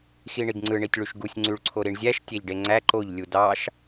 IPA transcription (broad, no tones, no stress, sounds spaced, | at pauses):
x i ɳ i ɡ ŋ͡ǀ ɯ ɳ i tʲ ɭ y ʃ ɡ u sʲ ŋ͡ǀ y ɭ ǀʰ o ɾ i ɳ zʲ æ ʃ tʲ æ ʎ ɖ e ŋ͡ǀ æ ǃ o ʎ lʲ u d ɑ ʃ